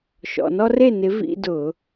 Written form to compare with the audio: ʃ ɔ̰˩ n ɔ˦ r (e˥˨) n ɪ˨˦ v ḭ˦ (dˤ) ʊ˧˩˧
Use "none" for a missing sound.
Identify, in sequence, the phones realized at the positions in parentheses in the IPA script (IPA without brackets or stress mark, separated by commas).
e˥˨, d